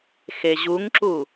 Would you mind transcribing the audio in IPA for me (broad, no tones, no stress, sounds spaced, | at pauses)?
x e ʑ u ŋ ǁ u